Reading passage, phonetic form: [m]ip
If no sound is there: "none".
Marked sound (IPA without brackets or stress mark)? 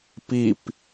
p